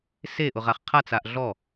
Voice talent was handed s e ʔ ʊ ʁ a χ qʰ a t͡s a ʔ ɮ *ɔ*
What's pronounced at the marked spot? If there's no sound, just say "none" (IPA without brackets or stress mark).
ɔ